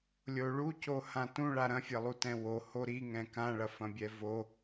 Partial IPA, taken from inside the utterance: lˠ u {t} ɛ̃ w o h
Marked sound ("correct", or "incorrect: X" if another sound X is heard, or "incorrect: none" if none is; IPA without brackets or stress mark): correct